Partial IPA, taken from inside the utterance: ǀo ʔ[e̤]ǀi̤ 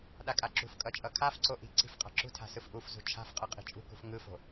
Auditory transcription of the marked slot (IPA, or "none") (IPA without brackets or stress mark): i̤